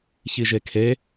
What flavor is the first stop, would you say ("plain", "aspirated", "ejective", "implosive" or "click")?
aspirated